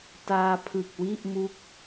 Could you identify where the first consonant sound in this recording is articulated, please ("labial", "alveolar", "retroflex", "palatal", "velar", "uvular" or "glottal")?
alveolar